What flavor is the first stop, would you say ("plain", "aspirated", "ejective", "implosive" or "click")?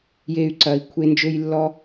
click